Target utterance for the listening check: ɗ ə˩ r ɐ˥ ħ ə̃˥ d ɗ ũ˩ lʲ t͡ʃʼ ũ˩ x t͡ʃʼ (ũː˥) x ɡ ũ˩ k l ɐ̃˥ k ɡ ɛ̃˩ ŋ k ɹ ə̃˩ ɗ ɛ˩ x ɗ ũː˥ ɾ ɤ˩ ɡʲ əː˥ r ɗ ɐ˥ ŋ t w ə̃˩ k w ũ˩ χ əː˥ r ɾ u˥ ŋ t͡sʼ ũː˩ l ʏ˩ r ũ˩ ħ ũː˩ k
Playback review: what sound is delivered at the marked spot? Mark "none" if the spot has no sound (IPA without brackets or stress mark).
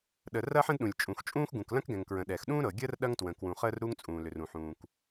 ũː˥